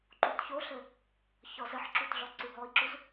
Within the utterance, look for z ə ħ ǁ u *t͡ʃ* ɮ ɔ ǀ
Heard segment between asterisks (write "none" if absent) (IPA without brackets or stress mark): t